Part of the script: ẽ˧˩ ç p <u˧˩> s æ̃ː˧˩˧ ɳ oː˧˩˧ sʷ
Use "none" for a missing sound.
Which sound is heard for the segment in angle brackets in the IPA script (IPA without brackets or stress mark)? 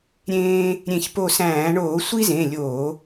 o˧˩